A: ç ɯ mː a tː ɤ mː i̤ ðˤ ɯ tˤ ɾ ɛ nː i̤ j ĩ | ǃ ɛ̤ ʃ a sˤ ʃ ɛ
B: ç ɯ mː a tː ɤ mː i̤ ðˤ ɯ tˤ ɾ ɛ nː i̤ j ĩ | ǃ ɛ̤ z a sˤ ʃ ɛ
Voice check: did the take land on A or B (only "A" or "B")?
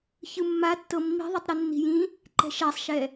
A